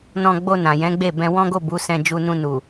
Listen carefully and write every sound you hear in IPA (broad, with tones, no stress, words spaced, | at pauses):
nɔ̃˧ ɡ͡bo˧ nã˨jɛ̃˨˦ɡ͡be˦˨bɛ̃˧ wɔ̃˦ɡo˦˨bu˨˦ sɛ̃˧d͡ʒu˧nũ˧ nu˨